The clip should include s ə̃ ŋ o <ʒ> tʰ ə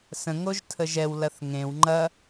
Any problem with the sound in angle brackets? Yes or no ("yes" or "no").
no